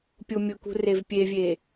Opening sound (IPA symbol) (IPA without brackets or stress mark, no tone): pʲ